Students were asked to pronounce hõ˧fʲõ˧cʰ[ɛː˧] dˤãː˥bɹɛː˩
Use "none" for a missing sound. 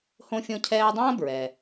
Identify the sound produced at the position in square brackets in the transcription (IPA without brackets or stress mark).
ɛː˧